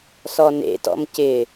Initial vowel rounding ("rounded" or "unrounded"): rounded